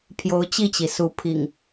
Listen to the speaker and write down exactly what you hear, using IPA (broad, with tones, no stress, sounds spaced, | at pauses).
pʰ j o˨˦ ʊ̯ t͡ɕ i˥˨ t͡ɕ i˩ s u˨˦ pʰ ḭ˨˩ ŋ